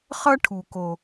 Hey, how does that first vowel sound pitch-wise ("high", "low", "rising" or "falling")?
high